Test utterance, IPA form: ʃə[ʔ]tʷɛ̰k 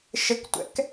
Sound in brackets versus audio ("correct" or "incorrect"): incorrect